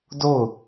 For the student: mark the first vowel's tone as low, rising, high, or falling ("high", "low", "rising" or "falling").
falling